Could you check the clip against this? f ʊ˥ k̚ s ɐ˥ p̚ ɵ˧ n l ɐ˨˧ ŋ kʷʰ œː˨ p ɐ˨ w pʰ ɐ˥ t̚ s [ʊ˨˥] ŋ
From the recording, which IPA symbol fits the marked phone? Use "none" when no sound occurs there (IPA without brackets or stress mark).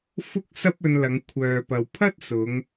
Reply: ʊ˨˧